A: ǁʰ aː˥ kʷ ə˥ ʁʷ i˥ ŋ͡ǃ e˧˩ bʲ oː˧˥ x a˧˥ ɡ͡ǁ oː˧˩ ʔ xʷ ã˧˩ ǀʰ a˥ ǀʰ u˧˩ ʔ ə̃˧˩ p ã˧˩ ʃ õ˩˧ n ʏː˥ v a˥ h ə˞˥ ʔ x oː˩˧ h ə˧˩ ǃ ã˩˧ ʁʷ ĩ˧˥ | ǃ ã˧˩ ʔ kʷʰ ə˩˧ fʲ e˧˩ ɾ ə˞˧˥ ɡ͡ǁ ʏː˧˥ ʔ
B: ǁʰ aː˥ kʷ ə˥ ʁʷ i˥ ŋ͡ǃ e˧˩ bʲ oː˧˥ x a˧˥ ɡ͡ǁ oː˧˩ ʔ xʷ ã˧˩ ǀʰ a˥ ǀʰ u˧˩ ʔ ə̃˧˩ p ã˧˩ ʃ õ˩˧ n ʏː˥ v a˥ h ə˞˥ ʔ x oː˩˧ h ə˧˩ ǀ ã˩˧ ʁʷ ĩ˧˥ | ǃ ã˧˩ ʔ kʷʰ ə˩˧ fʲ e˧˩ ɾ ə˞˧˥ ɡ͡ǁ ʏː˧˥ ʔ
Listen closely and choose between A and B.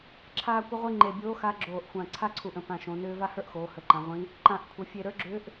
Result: A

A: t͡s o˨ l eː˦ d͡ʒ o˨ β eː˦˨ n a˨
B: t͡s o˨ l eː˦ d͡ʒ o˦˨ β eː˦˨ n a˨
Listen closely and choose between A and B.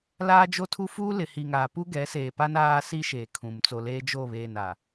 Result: B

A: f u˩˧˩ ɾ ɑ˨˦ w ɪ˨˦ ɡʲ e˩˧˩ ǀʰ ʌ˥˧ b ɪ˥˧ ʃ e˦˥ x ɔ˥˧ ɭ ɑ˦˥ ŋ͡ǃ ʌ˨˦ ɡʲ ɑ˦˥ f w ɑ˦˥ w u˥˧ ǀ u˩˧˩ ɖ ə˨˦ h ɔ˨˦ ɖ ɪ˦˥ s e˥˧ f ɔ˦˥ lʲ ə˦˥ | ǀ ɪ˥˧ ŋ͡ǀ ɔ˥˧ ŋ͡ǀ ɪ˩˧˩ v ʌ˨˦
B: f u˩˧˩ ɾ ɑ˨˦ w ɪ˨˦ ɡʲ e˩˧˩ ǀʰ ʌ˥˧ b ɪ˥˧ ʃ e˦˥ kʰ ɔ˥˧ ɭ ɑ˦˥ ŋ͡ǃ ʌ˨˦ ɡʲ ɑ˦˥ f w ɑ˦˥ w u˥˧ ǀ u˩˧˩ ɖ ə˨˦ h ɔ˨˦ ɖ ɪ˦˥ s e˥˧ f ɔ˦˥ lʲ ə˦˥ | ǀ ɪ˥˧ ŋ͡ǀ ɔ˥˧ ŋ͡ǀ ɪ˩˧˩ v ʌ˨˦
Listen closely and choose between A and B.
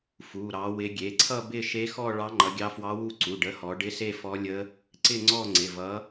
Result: A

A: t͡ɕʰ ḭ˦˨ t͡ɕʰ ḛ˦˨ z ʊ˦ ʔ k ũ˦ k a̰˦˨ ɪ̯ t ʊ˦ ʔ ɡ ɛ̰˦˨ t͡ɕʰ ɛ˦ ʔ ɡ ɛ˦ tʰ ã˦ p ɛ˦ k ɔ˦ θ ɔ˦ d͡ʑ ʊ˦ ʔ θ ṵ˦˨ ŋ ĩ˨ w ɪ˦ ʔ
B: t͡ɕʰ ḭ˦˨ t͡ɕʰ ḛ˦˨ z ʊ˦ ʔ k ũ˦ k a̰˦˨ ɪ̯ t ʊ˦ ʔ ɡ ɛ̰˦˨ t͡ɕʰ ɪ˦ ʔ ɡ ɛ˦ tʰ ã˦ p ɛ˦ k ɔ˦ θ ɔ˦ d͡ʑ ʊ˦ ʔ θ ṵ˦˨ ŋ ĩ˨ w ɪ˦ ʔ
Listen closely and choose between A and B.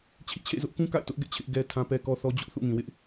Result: B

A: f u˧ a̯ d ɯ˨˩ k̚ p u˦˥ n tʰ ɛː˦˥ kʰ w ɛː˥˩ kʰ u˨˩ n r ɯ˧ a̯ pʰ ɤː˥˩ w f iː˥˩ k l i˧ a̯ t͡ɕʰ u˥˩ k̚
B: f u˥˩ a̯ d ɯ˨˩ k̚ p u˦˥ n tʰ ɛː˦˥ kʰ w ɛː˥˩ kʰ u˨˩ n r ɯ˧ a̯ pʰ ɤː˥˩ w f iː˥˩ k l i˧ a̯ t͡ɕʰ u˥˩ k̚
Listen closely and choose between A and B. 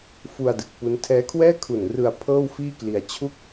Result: A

